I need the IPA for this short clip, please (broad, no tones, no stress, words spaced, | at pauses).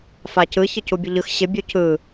facɯ çəcubʲəʎɯx ɕɪ bʲucɯ